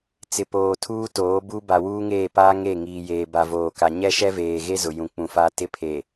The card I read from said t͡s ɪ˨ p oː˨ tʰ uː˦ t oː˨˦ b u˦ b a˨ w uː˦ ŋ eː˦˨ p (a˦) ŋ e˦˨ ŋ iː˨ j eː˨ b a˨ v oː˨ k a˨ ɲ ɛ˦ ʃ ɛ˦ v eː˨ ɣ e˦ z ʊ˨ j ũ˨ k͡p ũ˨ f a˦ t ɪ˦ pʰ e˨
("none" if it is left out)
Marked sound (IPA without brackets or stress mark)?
aː˦